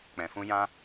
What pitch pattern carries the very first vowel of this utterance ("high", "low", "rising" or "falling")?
low